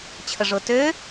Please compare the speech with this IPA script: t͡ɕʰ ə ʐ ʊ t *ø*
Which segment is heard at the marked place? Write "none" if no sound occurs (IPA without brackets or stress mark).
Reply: ø